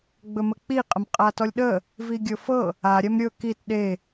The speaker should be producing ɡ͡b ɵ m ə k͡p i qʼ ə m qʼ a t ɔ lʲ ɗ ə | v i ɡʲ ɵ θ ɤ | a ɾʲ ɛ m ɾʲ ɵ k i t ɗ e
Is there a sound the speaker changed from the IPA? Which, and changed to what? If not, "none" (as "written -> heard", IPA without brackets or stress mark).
θ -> f